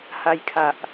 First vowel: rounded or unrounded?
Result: unrounded